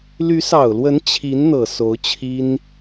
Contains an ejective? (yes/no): no